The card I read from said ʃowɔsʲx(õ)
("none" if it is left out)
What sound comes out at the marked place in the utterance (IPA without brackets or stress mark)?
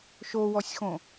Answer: õ